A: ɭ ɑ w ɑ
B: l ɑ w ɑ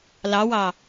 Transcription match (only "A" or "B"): B